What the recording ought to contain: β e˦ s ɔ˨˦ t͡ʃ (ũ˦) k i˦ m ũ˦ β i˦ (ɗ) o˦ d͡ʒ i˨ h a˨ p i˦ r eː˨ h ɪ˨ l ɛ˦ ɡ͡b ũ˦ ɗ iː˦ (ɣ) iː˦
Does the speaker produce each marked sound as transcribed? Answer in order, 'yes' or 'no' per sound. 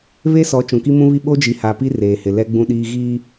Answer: no, no, yes

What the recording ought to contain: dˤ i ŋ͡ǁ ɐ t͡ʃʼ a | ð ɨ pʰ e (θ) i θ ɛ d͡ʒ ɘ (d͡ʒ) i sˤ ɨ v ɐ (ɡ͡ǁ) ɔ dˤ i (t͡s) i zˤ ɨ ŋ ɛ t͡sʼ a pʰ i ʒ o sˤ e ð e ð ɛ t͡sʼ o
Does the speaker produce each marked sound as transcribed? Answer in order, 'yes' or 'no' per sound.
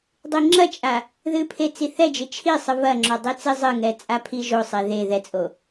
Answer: no, no, no, yes

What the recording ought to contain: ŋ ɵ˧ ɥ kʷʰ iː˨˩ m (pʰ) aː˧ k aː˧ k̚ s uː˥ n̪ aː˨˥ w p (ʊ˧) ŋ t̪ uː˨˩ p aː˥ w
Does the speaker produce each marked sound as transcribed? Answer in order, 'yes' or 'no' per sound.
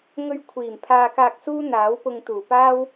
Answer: yes, yes

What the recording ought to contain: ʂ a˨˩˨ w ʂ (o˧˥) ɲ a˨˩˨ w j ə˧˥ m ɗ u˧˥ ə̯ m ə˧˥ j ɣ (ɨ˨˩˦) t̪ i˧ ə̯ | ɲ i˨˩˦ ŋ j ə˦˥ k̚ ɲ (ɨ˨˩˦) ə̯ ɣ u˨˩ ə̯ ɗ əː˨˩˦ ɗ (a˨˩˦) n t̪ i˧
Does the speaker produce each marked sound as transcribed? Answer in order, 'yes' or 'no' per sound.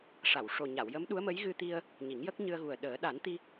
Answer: no, no, no, yes

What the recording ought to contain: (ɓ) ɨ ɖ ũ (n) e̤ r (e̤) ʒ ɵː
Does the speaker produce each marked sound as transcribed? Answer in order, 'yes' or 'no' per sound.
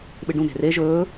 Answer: yes, yes, no

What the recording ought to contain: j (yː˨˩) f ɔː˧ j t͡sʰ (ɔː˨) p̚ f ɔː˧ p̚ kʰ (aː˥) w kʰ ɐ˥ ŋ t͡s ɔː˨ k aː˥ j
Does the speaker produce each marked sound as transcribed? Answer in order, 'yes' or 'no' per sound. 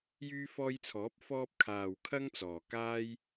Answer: no, no, no

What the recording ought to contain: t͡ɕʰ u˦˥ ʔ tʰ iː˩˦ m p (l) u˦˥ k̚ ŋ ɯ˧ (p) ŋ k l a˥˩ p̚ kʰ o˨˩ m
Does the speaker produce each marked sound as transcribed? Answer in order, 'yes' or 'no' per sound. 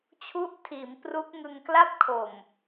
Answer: no, no

